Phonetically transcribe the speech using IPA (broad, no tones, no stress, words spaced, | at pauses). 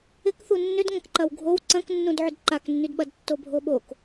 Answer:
ɪkθu nːʏdŋɐ̃kǃɐw ɡʱow ǀɐ̃knːũdʕʏd ǃaknːydɓɐd tːobʱoɓok